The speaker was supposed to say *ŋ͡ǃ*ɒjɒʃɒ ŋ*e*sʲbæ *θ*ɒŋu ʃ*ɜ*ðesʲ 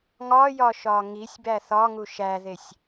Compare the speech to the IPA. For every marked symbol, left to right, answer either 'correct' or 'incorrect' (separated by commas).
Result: incorrect, incorrect, correct, incorrect